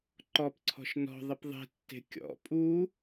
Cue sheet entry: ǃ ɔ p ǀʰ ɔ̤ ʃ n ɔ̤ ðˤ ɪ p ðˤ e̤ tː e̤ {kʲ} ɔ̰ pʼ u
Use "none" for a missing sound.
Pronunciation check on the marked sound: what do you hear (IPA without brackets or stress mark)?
kʲ